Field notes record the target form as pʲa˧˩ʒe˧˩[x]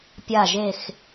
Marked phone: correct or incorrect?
correct